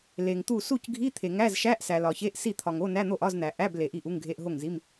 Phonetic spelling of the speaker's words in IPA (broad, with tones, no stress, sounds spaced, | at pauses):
l e˨ ŋ t̪ u˥˩ s u˥˩ c ɡʱ i˧˥˧ t̪ʰ e˨ ŋ æ˧˥˧ z ʃ æ˧˥˧ ʔ s æ˨ l ɒ˨ ç e˧˥˧ ʔ s i˥˩ t̪ʰ ɒ˨ ŋ o˧˥˧ n æ˧˥˧ n̪ o˥˩ ʔ ɒ˧˥˧ z n̪ æ˨ ʔ æ˧˥˧ b l e˨ ʔ i˥˩ ʔ u˧˥˧ ŋ ɡʱ e˧˥˧ ʔ ɦ o˥˩ ŋ z i˧˥˧ m